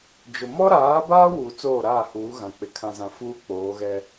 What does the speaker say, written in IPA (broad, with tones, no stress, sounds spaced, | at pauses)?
d͡ʒ ʊ˨ m ɔ˦ ɾ aː˨˦ b a˦ w uː˨ t͡s oː˦˨ ɾ aː˦˨ h uː˨˦ ɣ ã˨ k͡p ɪ˨ kʰ ã˨ z ã˨ f uː˦ k͡p oː˨˦ ɣ ɛ˦